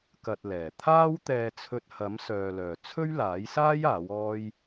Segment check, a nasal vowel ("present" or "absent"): absent